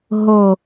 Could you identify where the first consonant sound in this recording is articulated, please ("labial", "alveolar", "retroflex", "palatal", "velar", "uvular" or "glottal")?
glottal